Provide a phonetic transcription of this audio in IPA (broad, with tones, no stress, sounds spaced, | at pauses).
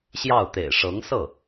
ɕ j ɑ˥˩ ʊ̯ t̪ ḛ˨˩ ɪ̯ ʂ ɤ˧˥ ŋ s ɤ˥˩